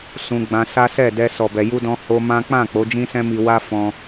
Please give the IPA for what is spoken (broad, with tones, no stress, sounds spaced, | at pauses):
s ũ˧ ɡ͡b ã˧ s a˦ s ɛ˦˨ d ɛ˧ s ɔ˨ b ɛ˨ j u˧ d ɔ̃˧ h o˧ m ã˦ k͡p ã˦˨ k͡p o˨˦ d͡ʒ ĩ˦ s ɛ̃˦ m i˧ w a˦ f ɔ̃˧